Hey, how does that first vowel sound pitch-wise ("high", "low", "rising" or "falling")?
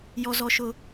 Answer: high